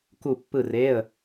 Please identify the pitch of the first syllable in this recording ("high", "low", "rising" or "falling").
falling